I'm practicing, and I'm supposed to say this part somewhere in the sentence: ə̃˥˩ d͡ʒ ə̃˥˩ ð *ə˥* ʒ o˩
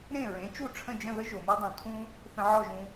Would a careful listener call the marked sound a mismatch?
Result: no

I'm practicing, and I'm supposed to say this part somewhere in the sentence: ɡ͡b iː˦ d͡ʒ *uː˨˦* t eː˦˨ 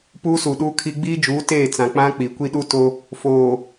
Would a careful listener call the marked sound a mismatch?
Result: no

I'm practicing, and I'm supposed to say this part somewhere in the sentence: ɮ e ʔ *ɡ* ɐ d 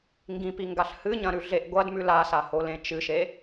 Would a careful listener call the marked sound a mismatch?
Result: yes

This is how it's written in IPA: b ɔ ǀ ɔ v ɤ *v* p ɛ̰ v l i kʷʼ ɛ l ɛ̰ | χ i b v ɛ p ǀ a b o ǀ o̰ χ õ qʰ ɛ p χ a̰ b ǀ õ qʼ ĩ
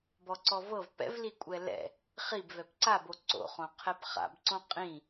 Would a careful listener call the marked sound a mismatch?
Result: no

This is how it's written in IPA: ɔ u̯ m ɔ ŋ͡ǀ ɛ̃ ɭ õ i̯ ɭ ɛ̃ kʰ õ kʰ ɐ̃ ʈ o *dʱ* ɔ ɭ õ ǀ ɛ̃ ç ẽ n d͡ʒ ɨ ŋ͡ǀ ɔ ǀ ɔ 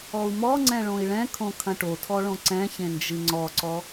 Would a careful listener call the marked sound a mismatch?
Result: yes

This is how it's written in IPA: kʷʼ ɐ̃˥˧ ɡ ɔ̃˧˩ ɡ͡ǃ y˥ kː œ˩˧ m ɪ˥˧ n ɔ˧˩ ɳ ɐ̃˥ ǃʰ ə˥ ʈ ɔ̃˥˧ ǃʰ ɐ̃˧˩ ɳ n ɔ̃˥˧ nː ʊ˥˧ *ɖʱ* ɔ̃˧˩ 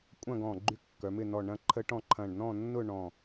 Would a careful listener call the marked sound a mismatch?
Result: yes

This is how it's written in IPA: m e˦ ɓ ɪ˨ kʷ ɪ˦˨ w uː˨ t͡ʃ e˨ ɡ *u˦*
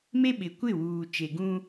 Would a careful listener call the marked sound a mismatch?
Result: yes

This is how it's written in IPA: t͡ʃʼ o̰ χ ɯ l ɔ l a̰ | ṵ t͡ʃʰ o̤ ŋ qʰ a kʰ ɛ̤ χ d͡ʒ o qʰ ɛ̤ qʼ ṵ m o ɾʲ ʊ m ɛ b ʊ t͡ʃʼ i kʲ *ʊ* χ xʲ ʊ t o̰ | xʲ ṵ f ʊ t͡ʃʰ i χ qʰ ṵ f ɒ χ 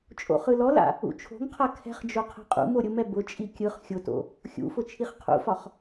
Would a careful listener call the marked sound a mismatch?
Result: yes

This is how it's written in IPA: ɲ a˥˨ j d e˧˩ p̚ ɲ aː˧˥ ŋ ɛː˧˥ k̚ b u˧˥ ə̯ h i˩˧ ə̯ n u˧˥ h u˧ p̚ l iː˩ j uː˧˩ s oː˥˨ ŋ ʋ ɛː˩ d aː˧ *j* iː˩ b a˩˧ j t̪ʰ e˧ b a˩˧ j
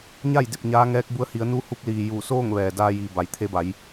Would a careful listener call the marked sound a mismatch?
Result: no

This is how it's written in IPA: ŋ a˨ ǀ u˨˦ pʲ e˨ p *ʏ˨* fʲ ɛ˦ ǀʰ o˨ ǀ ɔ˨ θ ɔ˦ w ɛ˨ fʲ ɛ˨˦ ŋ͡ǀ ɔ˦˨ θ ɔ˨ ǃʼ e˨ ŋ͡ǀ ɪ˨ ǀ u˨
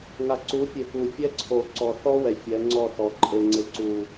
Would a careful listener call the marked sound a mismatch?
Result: yes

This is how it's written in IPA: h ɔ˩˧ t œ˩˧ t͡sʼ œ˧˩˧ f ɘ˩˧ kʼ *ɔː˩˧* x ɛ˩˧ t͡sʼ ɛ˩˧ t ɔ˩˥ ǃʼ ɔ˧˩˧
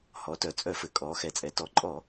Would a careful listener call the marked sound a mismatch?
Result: no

